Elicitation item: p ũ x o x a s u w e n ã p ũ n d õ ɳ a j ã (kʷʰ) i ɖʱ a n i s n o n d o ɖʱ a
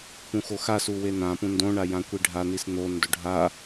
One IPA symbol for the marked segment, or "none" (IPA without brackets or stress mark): kʷ